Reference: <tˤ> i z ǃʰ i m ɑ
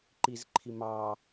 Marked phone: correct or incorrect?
incorrect